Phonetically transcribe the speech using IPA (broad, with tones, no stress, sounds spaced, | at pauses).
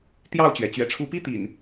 t̪ j ɑ˥˨ ʊ̯ t͡ɕ ɥ ɛ˩ t͡ɕ ɥ ɛ̰˨˩ ʈ͡ʂʰ u˨˦ p i˦ t̪ ḭ˨˩ n